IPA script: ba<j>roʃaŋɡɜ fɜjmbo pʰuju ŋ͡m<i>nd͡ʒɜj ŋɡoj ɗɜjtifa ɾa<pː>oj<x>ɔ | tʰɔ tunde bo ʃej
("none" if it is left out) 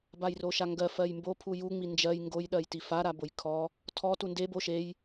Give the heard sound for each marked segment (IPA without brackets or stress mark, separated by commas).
j, i, b, kʰ